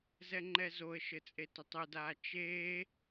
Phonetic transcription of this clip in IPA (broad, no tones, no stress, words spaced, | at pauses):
zɛŋ͡ǃɛzoə̯ʃɘ t͡sʼetʊtˤʉdaː t͡ʃeː